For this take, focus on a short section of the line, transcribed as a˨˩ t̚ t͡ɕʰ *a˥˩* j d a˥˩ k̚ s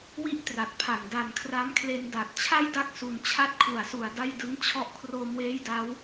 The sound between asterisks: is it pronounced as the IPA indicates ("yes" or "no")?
yes